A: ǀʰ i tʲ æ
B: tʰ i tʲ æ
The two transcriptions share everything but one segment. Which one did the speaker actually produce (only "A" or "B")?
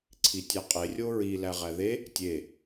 A